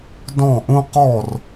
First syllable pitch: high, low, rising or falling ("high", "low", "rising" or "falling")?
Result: falling